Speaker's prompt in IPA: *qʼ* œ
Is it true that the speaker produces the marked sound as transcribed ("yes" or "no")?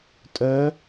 no